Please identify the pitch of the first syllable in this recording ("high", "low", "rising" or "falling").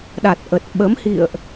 low